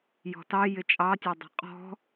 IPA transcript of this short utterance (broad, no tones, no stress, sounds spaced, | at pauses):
j ɔ̤ t ɑ j ɪ t͡ʃʼ ɑ tʲ ɛ dˤ ɛ̤ qʼ ɔ̤